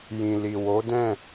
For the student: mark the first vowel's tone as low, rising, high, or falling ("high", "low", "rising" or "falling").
low